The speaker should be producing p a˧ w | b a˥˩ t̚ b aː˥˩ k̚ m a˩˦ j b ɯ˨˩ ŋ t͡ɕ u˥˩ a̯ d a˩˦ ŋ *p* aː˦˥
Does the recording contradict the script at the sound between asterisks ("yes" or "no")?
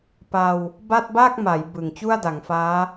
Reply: yes